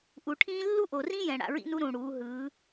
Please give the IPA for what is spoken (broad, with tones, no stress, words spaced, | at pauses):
ʔu˨ʈʰĩː˦ lːu˦ʔo˨rĩ˦jɛ̃˨ ɽa̰˨ɹḭ˦nu˦ ɾũ˨ɽuː˨˦ ɦɯː˨˦